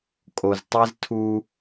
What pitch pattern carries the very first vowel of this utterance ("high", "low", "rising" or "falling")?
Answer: low